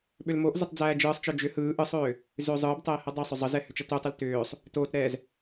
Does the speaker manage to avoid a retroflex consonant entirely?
yes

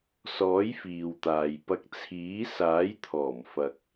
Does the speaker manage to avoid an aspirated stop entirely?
no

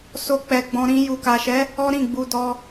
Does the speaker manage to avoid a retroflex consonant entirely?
yes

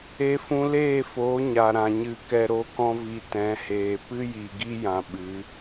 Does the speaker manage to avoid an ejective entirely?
yes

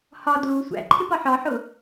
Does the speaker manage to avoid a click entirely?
no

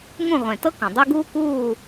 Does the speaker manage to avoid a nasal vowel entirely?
no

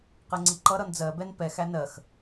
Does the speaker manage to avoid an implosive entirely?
yes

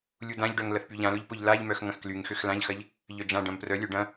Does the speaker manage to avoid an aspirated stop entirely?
yes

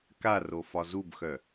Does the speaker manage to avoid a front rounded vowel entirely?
no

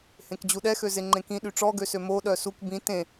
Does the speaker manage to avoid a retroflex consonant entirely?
no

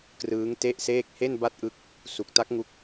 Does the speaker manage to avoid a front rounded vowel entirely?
yes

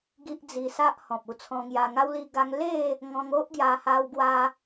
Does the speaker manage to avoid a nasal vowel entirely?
no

